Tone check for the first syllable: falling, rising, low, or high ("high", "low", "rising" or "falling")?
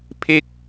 falling